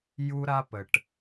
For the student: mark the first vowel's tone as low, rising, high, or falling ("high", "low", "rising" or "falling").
high